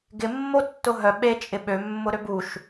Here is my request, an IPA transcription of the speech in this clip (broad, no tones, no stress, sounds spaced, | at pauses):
ɡ ɪ mː o tː ʊ ɦ œ ɓ e t͡ʃʼ ɪ ɓ ø mː ʊ ɾ ø b u ʃ